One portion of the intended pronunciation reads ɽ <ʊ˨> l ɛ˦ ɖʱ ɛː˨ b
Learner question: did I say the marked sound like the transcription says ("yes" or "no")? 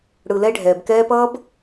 no